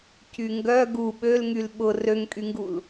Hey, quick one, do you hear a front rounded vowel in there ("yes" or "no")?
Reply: yes